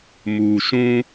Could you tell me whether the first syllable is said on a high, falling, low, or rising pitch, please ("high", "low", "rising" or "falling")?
low